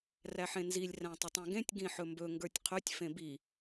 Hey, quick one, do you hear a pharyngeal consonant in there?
yes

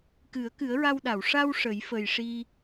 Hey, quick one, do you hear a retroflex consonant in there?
yes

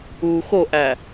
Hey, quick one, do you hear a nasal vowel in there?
no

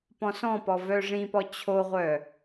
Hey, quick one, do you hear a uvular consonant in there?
yes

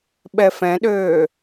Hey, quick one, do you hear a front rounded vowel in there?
yes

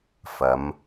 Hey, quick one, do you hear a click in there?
no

